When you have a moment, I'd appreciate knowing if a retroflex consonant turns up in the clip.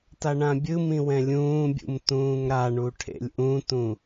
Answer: yes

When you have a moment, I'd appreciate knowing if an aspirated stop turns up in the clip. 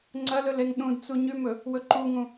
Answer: no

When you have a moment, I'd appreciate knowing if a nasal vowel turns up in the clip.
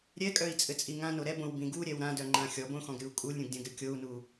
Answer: yes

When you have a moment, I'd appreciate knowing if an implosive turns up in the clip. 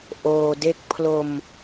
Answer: no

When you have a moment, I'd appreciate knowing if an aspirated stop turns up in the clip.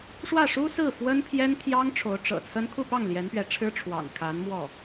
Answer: yes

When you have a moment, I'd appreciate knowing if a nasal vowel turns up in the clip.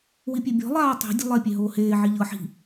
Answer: no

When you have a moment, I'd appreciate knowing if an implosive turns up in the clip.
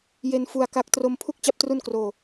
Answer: no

